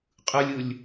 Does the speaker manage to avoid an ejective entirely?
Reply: no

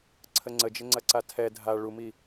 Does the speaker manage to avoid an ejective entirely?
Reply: yes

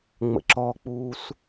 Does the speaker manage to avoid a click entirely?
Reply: no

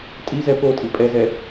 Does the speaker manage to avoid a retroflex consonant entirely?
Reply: yes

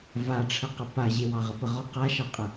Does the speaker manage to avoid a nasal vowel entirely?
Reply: yes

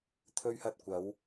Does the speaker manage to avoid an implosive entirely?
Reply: yes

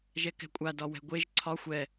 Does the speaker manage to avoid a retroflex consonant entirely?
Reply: yes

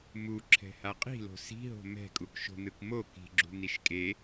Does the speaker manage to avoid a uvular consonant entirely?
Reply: no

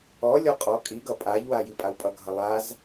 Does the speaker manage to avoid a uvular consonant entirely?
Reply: no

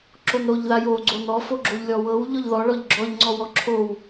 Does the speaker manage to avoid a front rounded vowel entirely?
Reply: yes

